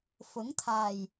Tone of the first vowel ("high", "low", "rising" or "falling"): rising